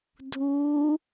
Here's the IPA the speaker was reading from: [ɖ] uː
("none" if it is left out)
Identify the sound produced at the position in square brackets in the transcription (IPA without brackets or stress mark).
dʱ